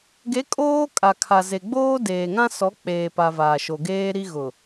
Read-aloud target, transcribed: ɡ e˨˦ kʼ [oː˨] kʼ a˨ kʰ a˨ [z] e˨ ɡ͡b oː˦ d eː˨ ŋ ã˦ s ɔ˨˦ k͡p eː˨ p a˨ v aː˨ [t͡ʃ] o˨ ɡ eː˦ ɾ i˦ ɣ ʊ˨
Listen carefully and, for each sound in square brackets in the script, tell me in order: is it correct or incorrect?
incorrect: oː˦, correct, incorrect: ʃ

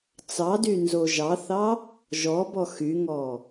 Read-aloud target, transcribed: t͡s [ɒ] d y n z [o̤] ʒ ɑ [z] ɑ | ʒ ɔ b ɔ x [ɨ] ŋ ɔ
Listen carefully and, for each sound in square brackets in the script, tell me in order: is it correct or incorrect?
incorrect: ɑ, incorrect: o, incorrect: θ, incorrect: y

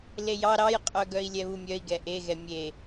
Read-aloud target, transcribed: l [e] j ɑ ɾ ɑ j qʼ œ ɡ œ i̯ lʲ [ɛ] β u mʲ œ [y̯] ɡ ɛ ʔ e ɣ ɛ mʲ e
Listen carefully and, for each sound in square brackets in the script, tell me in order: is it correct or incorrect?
correct, correct, incorrect: i̯

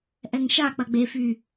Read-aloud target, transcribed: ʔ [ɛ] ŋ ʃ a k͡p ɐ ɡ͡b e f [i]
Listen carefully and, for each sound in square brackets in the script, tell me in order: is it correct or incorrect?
correct, incorrect: y

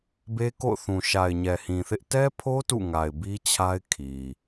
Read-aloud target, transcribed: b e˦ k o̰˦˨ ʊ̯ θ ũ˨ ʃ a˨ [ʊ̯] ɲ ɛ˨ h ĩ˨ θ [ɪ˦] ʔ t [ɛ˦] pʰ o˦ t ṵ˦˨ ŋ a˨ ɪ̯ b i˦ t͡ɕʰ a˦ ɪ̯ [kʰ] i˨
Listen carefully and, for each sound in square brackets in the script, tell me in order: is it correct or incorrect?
incorrect: ɪ̯, correct, correct, correct

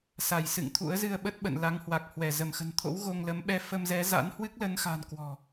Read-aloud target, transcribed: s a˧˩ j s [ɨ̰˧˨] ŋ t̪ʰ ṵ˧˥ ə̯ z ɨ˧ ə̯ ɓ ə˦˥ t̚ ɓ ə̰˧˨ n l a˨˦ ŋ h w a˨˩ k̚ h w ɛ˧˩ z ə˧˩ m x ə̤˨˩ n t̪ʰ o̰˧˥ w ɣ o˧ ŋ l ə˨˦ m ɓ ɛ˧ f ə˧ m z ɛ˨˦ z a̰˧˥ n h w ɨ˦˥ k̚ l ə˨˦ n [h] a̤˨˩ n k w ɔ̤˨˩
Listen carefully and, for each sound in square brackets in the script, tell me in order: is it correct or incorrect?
correct, incorrect: x

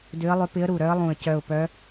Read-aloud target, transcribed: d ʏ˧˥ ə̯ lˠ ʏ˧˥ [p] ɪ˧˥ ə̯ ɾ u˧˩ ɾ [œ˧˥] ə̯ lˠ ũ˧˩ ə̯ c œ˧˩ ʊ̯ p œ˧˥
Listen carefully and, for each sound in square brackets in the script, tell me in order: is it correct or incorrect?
correct, correct

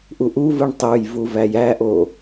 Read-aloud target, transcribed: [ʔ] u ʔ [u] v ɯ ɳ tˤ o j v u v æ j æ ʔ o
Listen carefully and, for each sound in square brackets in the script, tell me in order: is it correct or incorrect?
correct, correct

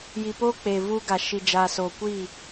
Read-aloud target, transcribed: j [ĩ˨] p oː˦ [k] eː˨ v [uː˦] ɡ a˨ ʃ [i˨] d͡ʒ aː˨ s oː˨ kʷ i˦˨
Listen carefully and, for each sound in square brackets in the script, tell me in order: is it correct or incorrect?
incorrect: i˨, incorrect: k͡p, correct, correct

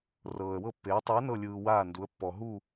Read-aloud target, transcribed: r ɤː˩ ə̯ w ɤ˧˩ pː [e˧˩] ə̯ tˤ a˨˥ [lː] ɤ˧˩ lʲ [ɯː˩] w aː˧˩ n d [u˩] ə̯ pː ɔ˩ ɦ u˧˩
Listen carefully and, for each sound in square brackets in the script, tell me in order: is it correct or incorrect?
incorrect: e˩˧, incorrect: n, correct, incorrect: u˩˧

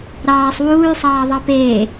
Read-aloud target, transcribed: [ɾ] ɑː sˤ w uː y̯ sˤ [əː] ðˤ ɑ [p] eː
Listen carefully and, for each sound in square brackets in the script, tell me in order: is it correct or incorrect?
correct, incorrect: ɑː, correct

